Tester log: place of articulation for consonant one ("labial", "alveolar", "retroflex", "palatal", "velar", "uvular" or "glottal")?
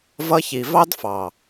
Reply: labial